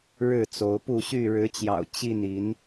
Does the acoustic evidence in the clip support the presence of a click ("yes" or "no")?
no